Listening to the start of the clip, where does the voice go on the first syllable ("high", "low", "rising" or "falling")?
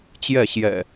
falling